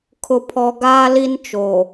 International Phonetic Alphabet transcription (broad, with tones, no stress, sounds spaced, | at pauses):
kʰ ʊ˨ pʰ ɔ˨ ɡ aː˦ l i˦ n t͡ʃ o˨